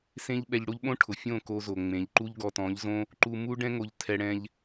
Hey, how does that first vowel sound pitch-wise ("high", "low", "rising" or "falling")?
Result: high